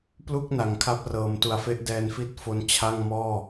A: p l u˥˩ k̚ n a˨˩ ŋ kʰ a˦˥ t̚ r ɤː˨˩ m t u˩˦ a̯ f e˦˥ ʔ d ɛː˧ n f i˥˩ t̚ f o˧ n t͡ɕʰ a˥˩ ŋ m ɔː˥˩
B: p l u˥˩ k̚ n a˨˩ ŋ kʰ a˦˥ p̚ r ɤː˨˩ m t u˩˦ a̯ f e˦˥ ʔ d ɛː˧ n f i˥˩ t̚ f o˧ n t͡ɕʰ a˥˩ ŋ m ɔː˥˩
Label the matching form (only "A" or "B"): B